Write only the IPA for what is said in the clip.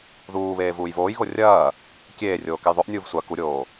ðuːβeː vuːjvoːjɣo rʲɐː | kʲeːrʲoː kɛjðˤoʔnʲuːv sʷa kuɾʲoː

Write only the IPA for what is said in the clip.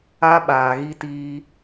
a˦ɓaː˨ɣi˦tiː˦

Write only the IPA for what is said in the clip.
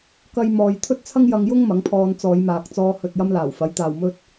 kɐ˥jmɔː˧j t̪ʰɵ˥t̚t͡sʰɐ˥ŋjɐ˧ŋjʊ˥ŋ mɐ˨˥ŋpʰɔː˧n t͡sɔː˨˧jmaː˨k̚t͡sɔː˧ hɵ˨t̚jɐ˧m laː˨˩wfɐ˨˥jt̪aː˨wmɵ˥t̚

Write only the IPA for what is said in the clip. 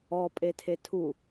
ɔpʼetʰe tʰu

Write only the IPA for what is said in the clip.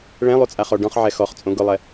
ɭɛ̃lˠut͡sʼaχɔ ɖɔ̃χʕɛ xɔχt͡sʼõ ɡʊlˠɛ

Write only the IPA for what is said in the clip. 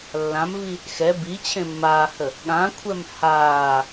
lːãmvi | xɛ bit͡ɕʰẽ mːaːhə | ɠãkʷʰɛm haː

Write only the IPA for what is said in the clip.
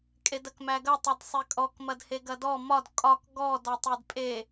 kʼedɐkmæɡɐ tˤɛdsˤekʼɔk mɐdheɡɐdɔ mɒd kʼɒk ɡɔ dɔtˤedpʼe

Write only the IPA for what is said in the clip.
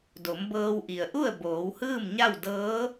do˩˧mbɤː˧wʔi˩ə̯ʔu˥˨ə̯ boː˩˧whɯː˥˨mɲa˥˨w dɤː˧˥

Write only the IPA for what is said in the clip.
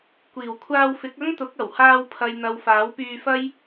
kʷiː˨˩wkʷʰaː˧wfɪ˨˥k̚ ɐ˥ŋt̪ʊ˨˥k̚ɐ˨˩whaː˧w pʰɐ˨jn̪ɐ˨w faː˨˥wpyː˧fɐ˥j

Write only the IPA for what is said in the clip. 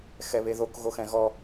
xɛβeðok ɣoxɛ̃ɣɔ

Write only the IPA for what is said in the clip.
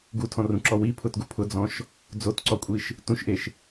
ɡutʰɔ̃rũǁɔ wipʰʊtɡu pʰʊd͡zɔ̃ʃ | d͡zotǀɔkʷʼiʃ | tũʃʔeʃ

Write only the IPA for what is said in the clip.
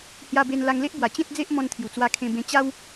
hja˧be˧n la˧ŋle˦ʔbwa˨˩ t͡ɕẽ˦t̚ d͡ze˦ʔmɔ̃˧nt̪ʰju˨˩ t͡swa˧kʰẽ˧bẽ˧ t͡ɕa˦w

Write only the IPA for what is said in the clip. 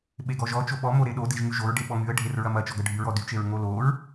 ɓeɡɔʒɔt͡ʃo ɓɔmo ɾeɗo deʒŋyʒoɹ ɖeɓɔŋyə̯ ɖʱerɹɐmɐ t͡ʃɔɡɐɖʱyɹɔ dyt͡ʃeɹ ŋoloɹ

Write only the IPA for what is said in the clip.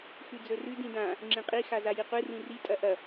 xʉd͡zɵrʉ dĩdã | ŋ͡ǁĩqʼi xazajiqʷɨ rĩri tʼɐʔɐ

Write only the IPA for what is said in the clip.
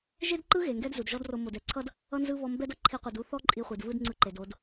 ʒe˦dǃɯ˦ ɣe˨ŋɡɛ˦d zu˨dʒɔ˦dro˧ mo˨dɛ˨ǀʰʌ˦d | ʌ˦nzɯ˦βɔ˧ mbɛ˦dʌ˧ ǃʰi˧qʷɯ˨du˦θɔ˦ ǃʼi˧χʷi˨dvɯ˦dŋ͡ǀɯ˧ ǃe˨do˧d

